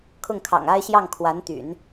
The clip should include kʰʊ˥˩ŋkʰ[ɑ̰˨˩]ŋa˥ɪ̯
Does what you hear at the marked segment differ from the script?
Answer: no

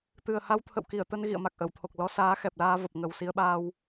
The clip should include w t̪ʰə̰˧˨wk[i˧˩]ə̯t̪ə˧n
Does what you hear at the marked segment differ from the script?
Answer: no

